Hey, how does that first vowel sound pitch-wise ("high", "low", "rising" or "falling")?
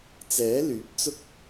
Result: rising